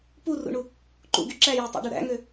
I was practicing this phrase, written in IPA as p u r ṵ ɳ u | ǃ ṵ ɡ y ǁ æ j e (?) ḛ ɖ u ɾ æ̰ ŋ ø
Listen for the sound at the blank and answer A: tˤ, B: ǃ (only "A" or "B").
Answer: A